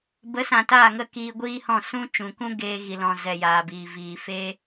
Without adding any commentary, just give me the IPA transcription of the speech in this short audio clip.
b ə˨˦ s ã˨ t aː˦˨ ŋ ə˦˨ k iː˧ ɡʷ iː˦ h ɔ̃˦˨ s ũ˦ t͡ʃ ũ˨ k ũ˦ ɡ eː˧ ɣ i˨ l ɔ̃˨ z ɛ˨ j aː˨ b iː˨ v iː˨ f eː˦

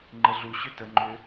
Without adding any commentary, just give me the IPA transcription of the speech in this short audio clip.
ŋ͡ǃ ə ɮ u ɕ ʏ t ə ŋ͡ǃ ʏ

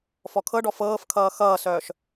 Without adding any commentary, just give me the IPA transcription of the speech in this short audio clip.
f ɔ kʰ ɤ ɖ ɔ f ɤː f kʰ ʌː x ʌː s œː ʃ

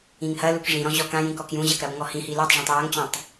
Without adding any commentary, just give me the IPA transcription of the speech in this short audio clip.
ĩ ŋ h ɐ l u k ʐ ĩ ɾ ɔ̃ ʑ ɔ k ã j ĩ k ɔ k j ũ ʑ ɐ k ɾ ɐ b ŋ ɔ h ĩ h i l o tˤ ʐ ɔ̃ tˤ j a ŋ t͡ɕ ɔ̃ tˤ

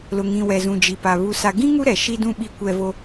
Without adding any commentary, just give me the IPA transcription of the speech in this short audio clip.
l ʊ˨ ŋ ĩ˨ w ɛ˨ z ũ˨ d͡ʒ i˨ p a˨ β u˨ s a˨ ɡ ĩ˦ ŋ u˦ ɾ ɛ˨ ʃ i˦ d ũ˦ ɓ i˦ kʷ ɛ˦ v o˦

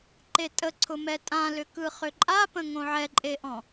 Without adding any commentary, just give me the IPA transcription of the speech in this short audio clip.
ǃ e tʼ ə ǀʰ ʊ m ɛ tʼ ã l ʏ k ɯ χ ʏ ǃʼ a p ə̃ ŋ õ ʕ ɛ ǃʼ e ʔ ɔ̃

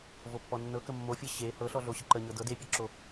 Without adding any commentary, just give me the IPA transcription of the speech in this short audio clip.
v o pː ɔ nː ɤ k ə mː o fʲ ɤ ɕ e h ɤ ɬ ɔ ɮ o ɕ ə ǃ ə ɲ ɤ d ɤ d e pʲ ɤ ǁ o

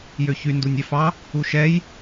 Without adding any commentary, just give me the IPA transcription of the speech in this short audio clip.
j ø ç y n d u nʲ ɛ f ɑ | u ʃ ɛ j

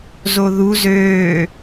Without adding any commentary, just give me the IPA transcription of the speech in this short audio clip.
z o ð u z øː

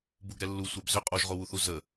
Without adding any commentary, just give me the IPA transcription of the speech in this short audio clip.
b u ɡ ɾ ɛ lː u sʷ ɛ b z ʏ qʼ o ʒ ʁ o w u θ u z ə

